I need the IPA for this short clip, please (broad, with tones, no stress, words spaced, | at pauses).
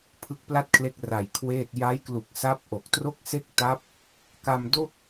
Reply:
pʰɯ˦˥k̚pla˥˩t̚kʰle˦˥k̚ ra˨˩jkʰweː˥˩t̚ ja˦˥jklu˨˩k̚ sa˦˥p̚ʔo˨˩k̚tro˥˩k̚ se˥˩k̚ta˦˥p̚ | ka˧mdo˥˩k̚